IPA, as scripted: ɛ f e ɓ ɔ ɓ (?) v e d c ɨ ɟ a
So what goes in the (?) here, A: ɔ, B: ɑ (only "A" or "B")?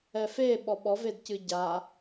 A